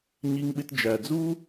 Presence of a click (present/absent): absent